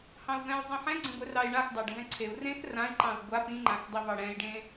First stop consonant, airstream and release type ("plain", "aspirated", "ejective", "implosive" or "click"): click